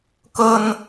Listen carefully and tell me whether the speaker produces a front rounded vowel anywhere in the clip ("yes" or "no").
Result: no